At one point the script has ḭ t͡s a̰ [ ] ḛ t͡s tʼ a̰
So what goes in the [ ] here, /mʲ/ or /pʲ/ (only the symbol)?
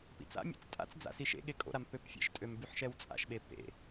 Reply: mʲ